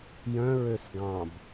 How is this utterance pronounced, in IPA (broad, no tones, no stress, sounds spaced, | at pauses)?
j œ̃ ɹ ø s ɡ ɑ̃ b